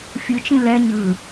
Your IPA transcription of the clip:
fʲ ɯ t͡ʃ ĩ l ɛ ɲ ɯ

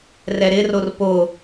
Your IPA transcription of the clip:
r ɛ ɾ ɪ r o r p o

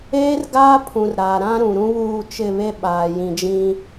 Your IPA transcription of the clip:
eː˦ r ɡ aː˦ pʰ ũ˨ r ɾ aː˨ ɾ ã˦ ɾ ũ˨ ɾ ũ˦ β uː˦˨ t͡ʃ ɪ˦˨ β e˦ ɓ aː˨ j ĩ˨ d͡ʒ ĩ˦

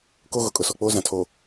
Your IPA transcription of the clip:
k o˦ ɣ ʊ˨ kʼ ʊ˨ s ɔ˨ k͡p oː˦ z ã˨ tʰ o˨

